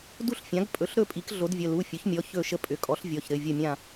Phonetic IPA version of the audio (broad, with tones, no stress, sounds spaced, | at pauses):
d u˥˨ ɬ fʲ ã˩˥ ɡ pʼ ɵ˩˥ ɬ ɾ ɵ˥˨ pʼ i˩˥ k ɮ o˩˥ d vʲ ə˩˧˩ l u˩˧˩ fʲ ɵ˩˥ ç mʲ ɔ˩˧˩ ç ɵ˥˨ ʃ ə˥˨ pʼ ʏ˩˥ kʼ ɔ˩˥ ɬ vʲ ɔ˩˧˩ ç ɾ ɘ˩˧˩ vʲ ə˥˨ mʲ ã˥˨